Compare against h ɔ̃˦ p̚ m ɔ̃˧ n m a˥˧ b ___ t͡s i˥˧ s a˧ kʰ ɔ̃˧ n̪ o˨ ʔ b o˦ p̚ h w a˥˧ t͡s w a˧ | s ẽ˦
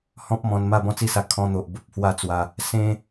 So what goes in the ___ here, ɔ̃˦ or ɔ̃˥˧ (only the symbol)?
ɔ̃˥˧